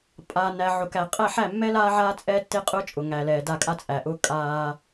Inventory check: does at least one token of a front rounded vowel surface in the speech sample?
no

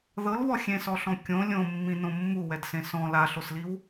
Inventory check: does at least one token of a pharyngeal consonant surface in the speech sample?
no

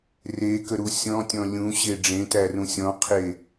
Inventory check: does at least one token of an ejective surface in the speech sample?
no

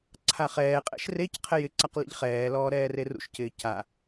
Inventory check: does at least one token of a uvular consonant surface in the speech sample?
yes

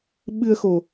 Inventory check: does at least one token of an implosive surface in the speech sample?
yes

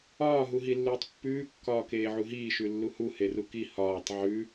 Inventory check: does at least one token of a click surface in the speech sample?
no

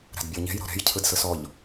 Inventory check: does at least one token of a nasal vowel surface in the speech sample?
no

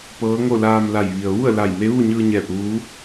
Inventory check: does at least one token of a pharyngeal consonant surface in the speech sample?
no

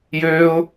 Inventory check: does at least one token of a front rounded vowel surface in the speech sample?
yes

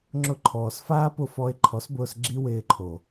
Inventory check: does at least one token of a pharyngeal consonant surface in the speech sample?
no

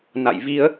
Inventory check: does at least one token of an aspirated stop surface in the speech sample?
no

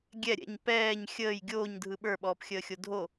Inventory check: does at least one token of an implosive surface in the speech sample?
yes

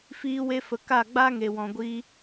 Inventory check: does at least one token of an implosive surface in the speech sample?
no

